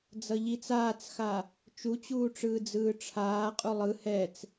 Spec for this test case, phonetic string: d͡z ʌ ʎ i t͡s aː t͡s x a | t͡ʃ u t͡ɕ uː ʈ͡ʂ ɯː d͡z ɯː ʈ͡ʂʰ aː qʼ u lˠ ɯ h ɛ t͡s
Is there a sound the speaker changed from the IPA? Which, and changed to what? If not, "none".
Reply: none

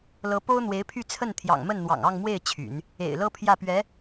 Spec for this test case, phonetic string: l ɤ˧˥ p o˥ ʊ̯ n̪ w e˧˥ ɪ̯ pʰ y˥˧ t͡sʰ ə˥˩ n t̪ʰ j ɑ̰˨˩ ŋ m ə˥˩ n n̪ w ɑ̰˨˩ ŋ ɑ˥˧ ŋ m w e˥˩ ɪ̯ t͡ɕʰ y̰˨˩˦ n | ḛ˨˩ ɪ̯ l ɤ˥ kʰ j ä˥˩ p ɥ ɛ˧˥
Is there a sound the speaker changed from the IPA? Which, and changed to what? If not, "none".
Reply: kʰ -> pʰ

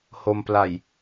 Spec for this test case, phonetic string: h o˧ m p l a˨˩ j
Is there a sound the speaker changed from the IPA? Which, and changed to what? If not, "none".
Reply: none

